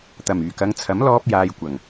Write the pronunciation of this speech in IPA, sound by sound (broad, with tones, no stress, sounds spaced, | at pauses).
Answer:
t̪ ɐ˨˩ m yː˨˩ k ɐ˨˧ ŋ t͡sʰ ɐ˨˥ m l ɔː˥ p̚ j aː˧ j kʷ ɐ˨˩ ŋ